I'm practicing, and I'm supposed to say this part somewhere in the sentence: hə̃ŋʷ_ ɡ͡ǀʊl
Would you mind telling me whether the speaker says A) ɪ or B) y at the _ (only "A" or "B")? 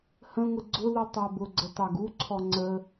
A